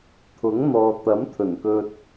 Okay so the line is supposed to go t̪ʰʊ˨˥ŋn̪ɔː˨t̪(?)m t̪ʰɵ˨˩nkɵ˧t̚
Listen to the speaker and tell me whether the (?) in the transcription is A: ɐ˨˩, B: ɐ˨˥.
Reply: B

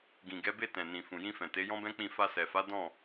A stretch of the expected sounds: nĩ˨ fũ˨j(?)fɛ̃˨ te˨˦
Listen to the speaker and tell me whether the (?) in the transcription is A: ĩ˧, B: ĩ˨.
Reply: A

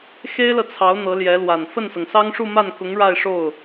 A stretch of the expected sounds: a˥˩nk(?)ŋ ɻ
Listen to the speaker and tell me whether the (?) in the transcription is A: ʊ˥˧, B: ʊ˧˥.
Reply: B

